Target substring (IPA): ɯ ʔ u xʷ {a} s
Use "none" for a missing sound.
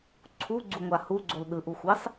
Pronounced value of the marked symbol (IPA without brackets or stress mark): ɑ